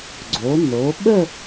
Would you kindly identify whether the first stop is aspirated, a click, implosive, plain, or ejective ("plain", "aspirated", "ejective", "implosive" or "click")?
click